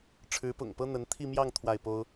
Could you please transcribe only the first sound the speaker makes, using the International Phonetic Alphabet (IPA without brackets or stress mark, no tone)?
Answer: ʈ͡ʂʰ